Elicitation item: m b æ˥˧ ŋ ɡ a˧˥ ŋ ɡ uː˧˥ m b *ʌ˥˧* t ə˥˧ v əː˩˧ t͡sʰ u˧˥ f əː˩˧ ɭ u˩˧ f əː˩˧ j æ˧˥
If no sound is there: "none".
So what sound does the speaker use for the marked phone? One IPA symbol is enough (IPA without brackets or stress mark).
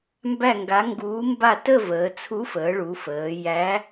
a˥˧